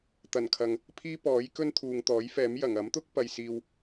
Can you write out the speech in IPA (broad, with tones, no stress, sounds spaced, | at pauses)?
t̪ ɐ˨˩ n kʰ ɐ˨ ŋ | pʰ iː˥ p ɔː˨˥ j k ɵ˥ n t̪ʰ uː˨ ŋ t̪ ɔː˨˥ j f ɛː˨˥ m j ɐ˨˩ ŋ ɐ˨˥ m t̪ ʊ˥ k̚ p ɐ˧ j s iː˧ w